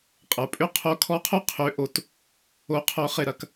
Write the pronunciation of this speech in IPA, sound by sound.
qʼ ə˩˧ pʼ ʏ˥ qʰ o˧˥ kʰ ɔ˧˥ qʰ ʊ˥ qʰ ʏ˧˥ ʔ o˧ t | o˧˥ qʰ œ˧˥ χ ɪ˧ ɾ ɐ˧ k

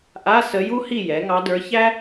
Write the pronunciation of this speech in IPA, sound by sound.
ʔ a˧˥˧ s ə˧˥ j u˥ h i˥˨ j ɛ˩˥ ŋ ɑ˧˥ d ə˞˧˥ ç æ˥

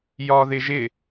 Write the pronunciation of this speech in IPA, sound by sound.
j ɒ ð ɪ ʒ ɪ

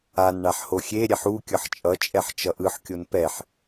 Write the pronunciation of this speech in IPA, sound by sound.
a n ɳ a ħ h o xʲ e ɾʲ ɛ ħ u kʲ ʌ ħ t͡ʃʼ ʌ t͡ʃʼ ɛ ħ t͡ʃ ʌ ʔ ɯ ħ kʲ o n p ɛ ħ

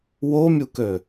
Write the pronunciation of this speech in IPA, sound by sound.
w o mʲ u k ø

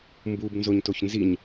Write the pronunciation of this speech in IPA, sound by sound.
m b u b n z o ɲ t o ç n z i ɲ

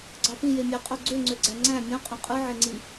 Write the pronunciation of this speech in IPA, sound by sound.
ɡ͡ǀ ɑ p ĩ j e mʲ æ qʼ o ɡ͡ǀ ø ŋ͡ǀ ø ɡ͡ǀ æ ŋ͡ǀ æ̃ mʲ õ qʼ õ qʼ ɯ ʕ e ŋ͡ǀ i

